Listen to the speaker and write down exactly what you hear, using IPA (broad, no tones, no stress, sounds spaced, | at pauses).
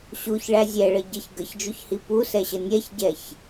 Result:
ɕ u ç ɭ æ zʲ ɛ ɭ ə ɟ ə ç ɡ ə ç d͡ʒ u ç h i p u s ɛ ɕ ə nʲ ɛ ç ɟ ɛ ç